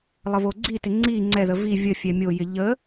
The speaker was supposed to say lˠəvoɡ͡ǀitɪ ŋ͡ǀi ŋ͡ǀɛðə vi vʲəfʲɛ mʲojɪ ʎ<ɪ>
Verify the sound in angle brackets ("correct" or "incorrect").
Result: incorrect